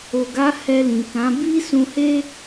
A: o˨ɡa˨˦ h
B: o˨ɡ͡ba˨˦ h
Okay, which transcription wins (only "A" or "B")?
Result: A